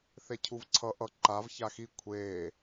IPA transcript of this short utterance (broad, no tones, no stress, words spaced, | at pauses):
θecʰuvǀʰʌ ʔʌ ǃav çaxi kʷʰeː